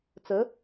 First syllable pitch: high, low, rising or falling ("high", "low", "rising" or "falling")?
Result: rising